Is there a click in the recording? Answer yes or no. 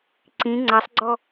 yes